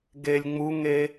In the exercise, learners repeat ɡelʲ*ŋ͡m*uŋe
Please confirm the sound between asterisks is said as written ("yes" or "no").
yes